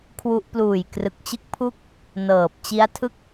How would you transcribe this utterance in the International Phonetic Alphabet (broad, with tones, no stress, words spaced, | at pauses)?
kʰwu˦˥ʔ pluː˨˩j krɯ˨˩k̚t͡ɕɯ˦˥k̚pʰu˦˥k̚ | nɤː˨˩p̚t͡ɕi˦˥a̯tʰɯ˥˩k̚